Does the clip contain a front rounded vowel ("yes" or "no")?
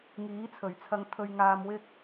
no